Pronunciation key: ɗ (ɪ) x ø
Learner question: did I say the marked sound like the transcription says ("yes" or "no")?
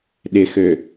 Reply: yes